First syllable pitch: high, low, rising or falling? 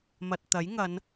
low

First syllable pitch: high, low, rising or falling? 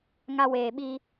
high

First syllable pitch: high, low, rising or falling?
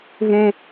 high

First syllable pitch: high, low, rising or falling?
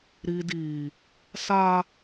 low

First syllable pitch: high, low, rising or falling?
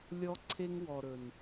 high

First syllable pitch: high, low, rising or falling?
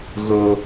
high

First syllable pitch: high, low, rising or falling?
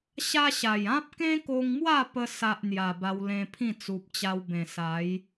high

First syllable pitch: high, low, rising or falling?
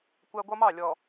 high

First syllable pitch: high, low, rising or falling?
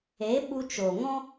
rising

